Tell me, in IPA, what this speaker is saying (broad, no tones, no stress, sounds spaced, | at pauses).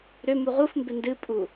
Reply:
ɾ ʏ m u ʁ u f m b ɪ n d ɨ pʼ u